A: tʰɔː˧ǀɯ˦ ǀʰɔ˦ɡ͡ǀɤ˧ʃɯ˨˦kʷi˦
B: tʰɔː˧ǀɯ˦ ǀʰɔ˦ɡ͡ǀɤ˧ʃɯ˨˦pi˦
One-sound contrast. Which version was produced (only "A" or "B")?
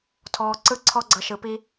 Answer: B